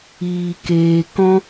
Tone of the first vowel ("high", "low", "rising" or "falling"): low